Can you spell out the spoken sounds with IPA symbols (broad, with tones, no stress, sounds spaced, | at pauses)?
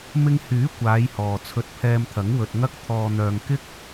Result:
m ɪ˧ ŋ h yː˨˥ kʷ aː˨˧ j h ɔː˨ t͡sʰ ɵ˧ t̚ pʰ ɛː˧ m t̪ʰ ɐ˨˥ ŋ w ɵ˨ t̚ ŋ ɐ˧ k̚ t̪ʰ ɔː˨ n̪ œː˨ ŋ k ɪ˥ k̚